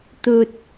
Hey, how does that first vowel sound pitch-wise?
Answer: low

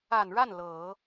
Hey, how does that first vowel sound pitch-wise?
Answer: low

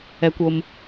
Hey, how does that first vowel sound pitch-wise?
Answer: low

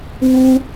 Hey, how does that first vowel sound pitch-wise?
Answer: high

